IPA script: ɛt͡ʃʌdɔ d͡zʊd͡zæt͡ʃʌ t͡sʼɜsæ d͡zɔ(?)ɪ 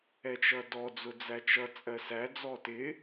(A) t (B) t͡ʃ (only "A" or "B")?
A